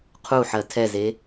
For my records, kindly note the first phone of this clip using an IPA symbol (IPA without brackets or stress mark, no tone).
qʰ